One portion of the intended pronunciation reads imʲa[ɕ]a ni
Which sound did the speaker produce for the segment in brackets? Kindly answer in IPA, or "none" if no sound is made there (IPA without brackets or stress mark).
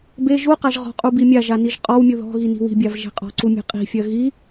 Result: ʒ